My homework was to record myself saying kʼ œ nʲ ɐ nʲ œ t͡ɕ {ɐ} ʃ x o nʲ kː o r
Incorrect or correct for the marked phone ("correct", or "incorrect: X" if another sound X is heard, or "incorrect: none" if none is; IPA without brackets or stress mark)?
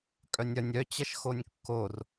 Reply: correct